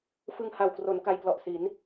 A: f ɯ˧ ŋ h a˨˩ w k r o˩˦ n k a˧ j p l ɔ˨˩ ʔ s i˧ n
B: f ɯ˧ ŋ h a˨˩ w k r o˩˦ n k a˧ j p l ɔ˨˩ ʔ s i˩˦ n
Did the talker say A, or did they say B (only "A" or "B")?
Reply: B